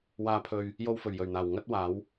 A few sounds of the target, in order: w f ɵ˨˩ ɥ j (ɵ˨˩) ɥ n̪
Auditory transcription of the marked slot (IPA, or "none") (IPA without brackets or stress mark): ɵ˨˩